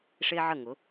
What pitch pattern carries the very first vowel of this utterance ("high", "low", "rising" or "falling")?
high